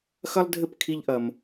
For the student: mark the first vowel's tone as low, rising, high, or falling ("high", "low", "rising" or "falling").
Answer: high